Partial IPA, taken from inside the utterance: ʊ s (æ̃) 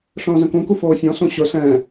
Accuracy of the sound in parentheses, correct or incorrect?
incorrect